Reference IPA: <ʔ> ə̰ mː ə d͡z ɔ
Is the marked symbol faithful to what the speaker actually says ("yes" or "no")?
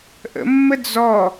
yes